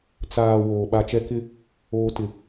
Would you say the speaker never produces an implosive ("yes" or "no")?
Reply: no